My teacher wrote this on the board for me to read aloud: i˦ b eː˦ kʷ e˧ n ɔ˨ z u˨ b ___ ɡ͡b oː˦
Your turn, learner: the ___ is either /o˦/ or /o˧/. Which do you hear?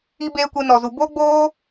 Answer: o˦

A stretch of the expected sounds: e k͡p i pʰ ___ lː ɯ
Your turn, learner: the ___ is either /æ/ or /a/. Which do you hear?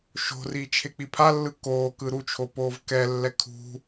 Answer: a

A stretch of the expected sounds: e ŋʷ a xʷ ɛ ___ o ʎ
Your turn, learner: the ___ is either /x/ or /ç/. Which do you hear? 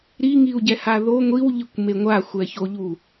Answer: ç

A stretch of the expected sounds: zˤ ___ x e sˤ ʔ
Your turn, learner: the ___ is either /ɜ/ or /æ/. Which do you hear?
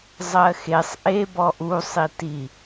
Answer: ɜ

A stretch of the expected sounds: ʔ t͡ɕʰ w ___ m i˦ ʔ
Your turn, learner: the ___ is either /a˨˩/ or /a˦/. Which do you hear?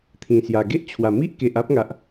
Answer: a˨˩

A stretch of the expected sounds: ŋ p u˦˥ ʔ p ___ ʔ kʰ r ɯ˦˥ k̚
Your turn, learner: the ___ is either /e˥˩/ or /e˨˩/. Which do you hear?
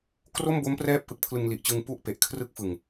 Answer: e˨˩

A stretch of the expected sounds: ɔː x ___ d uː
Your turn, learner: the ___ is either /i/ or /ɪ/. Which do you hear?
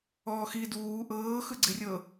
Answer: i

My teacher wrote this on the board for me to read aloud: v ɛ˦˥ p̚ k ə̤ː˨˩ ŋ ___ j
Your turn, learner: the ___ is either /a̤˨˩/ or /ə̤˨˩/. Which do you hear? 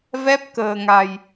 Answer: a̤˨˩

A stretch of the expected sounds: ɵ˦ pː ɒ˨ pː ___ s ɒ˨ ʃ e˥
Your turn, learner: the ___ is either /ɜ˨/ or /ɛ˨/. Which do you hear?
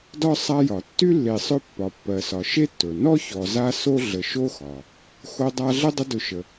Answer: ɜ˨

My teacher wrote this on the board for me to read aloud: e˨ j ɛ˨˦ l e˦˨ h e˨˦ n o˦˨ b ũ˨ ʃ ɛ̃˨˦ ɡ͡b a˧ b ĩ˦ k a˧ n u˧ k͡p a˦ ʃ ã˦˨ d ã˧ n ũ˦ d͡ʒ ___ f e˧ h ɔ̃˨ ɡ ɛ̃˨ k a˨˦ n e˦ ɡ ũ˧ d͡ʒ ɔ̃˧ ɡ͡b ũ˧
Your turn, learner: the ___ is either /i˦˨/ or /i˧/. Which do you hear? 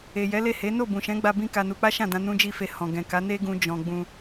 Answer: i˦˨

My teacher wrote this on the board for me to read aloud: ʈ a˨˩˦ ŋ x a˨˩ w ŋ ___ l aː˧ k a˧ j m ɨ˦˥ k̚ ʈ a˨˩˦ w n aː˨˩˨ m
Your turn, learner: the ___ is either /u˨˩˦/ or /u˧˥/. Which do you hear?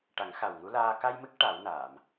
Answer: u˧˥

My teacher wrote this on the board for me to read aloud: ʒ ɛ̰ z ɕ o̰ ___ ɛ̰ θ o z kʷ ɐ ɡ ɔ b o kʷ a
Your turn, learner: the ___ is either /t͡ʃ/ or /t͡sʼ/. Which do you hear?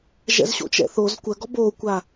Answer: t͡ʃ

